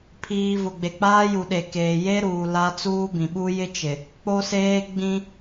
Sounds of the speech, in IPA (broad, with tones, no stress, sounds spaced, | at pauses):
pʰ iː˦ v ʊ˨ ɡ͡b e˨ k͡p aː˦ j u˨ ɗ e˨ k eː˨ j e˦ ɾ uː˨ l a˦ t͡s uː˦ b ĩ˨ ɓ u˦ j ɪ˦ t͡ʃ ɪ˨ | k͡p o˦ s eː˦ ɡ͡b ĩ˦